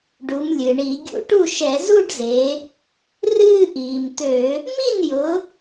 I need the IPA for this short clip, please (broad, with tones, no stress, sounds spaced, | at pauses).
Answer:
ɖ u˩˧ m lʲ ɨ˩ ɳ i˧˩˧ ɡʲ ṵ˧˩˧ ʈ u˥˩ ʃ ɛ˧˩˧ z u˥˧ ɖ z e˩˧ | r ɨː˥˧ ʔ iː˩ m t̪ ø˧˩˧ | m i˥˩ n j ʊ˩˧